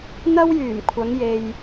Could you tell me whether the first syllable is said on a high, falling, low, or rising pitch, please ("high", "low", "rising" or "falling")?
high